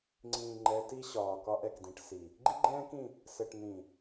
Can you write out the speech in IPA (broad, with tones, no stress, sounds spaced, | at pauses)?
ŋ͡ǀ ĩː˨ ŋ͡ǃ ɛ˨˦ t i˦ ɕ ɒː˨ k ɒ˦ ʔ ɛ˨ k d ĩ˨ ʈ s i˨ | ɡ͡ǃ i˦ ɡ͡ǃ ɛ̃ː˦ k ĩ˦˨ | s ɘ˨ ʈ n̪ ĩ˨